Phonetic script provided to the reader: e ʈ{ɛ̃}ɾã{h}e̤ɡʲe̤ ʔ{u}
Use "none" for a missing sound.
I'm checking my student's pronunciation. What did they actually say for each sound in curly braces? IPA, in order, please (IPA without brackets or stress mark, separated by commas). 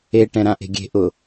ɛ̃, ʔ, ʊ